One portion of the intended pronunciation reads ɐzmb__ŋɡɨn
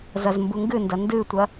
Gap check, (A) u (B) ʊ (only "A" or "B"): A